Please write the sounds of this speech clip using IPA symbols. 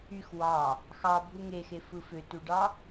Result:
y x w ɑ | x ɑ bʱ u ŋ e x e f ɯ f ø t u ɖ ɑ

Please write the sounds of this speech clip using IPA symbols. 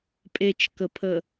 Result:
pʼ e t͡ʃ k ə pʰ ə

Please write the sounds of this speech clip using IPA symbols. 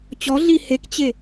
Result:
t͡ɕ ɔ ɮ i h e k t͡ɕ e

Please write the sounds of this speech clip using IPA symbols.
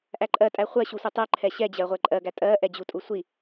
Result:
ʔ æ ǃʼ ɜ tʼ æ χʷ ɜ ɕ u sʷ ɛ tˤ ɜ ǃʰ ɛ ɕ ɛ d͡ʑ ɜ ʁʷ ɛ ǃʼ ɜ ɡ æ tʼ ɜ ʔ ɛ d͡ʑ u tʼ u sʷ i

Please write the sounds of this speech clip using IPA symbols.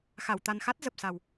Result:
x a˧˩ w t̪ a˨˩ n x a˦˥ t̚ z ə˨˩ p̚ s a˨˩ w

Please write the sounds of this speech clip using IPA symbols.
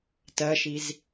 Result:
t ɜ ʃ i z

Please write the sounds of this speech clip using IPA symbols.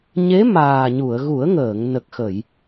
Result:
ɲ e˧˥ m aː˨˩ ɲ u˨˩˨ ə̯ ɣ u˨˩˦ ə̯ ŋ əː˨˩˨ ŋ n ə˨˩ k̚ x ə˨˩˨ j

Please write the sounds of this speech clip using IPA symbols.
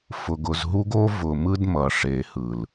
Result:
f ʊ˨ ɡ ʊ˨ z ɦ u˦ ɡ o˦ v ʊ˨ m ɯ˦ d m ʌ˨ ʂ e˨ h ɯ˨ l

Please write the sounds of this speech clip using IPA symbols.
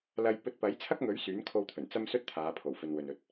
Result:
l ɐ˧ j p ɵ˧ t̚ p ɐ˨˥ j t͡sʰ ɐ˥ k̚ ŋ ɵ˨˥ ɥ s yː˨˥ n kʰ o˧ w t̪ʰ ɵ˨˩ n t͡s ɐ˥ m s ɵ˥ t̚ t̪ʰ aː˨˧ pʰ o˨˩ w f ɵ˨ n w ɵ˨ n ɵ˨ t̚

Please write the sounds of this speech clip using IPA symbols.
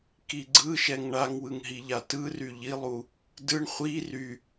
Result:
k i ɡ͡ǀ ɯ ʃ ɛ ŋ ɳ a ŋ w ɯ ŋ ɦ i ʎ a t ɯ r y ʎ i lˠ u | d ɯ ɳ χʷ i r y

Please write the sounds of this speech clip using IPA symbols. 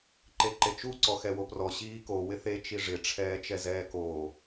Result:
ǃ e ǃ e t͡ʃ u ǀ ɔ x ɛ w o p r ɔ ɕ iː k o w ɪ θ e t͡ʃ i ʐ ɪ ʈ͡ʂʰ ɛː t͡ʃ ɛ z ɛː k oː

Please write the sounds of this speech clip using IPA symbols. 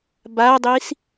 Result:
b a dˤ i s

